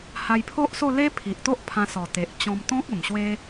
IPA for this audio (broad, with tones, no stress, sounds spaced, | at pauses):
h a˧ j pʰ o˦ ʔ s o˥˧ l e˦ pʰ i˨ ʔ t̪ o˦ ʔ pʰ ã˧ s ɔ˨˩ t̪ e˨ ʔ t͡ɕ ɔ̃˧ m t̪ ɔ̃˦ k̚ ə˨˩ m ɕ w e˦